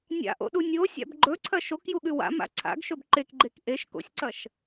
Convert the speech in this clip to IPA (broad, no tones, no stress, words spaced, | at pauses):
nʲa̰ʔo̰ɗu nʲosʲa̰b ɡ͡ǃɵǀʰɐ ʃokjuɠʉ wa̰ma̰ ǀʰa̰ɡʃɵb ǃekɡ͡ǃek ʔeʃ ko̰sʲǀɐʃ